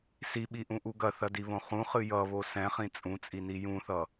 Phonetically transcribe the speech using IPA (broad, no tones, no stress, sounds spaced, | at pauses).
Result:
s i ɓ i ʔ ũ ʔ u ɡ ɐ θ ɐ d i β õ χ ũ χ ɨ j ʌ β o s ɛ̃ χ ĩ t͡sʼ ũ t͡sʼ i n i j ũ θ ʌ